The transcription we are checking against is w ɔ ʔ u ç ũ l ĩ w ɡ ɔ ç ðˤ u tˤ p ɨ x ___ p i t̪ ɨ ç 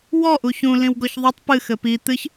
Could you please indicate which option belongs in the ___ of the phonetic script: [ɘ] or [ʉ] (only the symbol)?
ɘ